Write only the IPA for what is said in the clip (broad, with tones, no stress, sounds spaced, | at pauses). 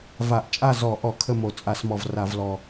v a˧˩˧ ʔ t͡ʃʼ a˥˨ z ɔ˧˩˧ ʔ ɔ˧˩˧ kʰ ə˥˨ m o˧˩˧ t͡sʼ a˧˩˧ s m ɔ˨˩ v r a˧˩˧ v l ɔ˨˩